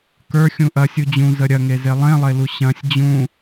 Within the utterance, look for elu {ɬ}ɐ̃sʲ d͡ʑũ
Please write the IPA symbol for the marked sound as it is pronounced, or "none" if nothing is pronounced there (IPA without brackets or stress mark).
ɕ